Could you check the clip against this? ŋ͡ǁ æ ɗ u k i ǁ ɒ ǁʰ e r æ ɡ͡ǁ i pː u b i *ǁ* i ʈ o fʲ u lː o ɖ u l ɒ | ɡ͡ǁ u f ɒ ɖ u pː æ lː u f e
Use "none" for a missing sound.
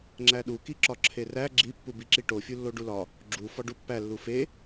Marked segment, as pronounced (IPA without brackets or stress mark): ǁ